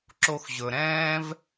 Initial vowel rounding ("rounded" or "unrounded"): rounded